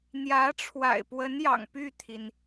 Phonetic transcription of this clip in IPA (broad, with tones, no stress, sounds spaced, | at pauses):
n̪ j ä˧˥ ʈ͡ʂʰ w a̰˨˩ ɪ̯ p w ə˧˥ n j ɑ̰˨˩ ŋ p y˥˩ t̪ʰ i˩ n